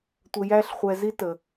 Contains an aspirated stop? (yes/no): no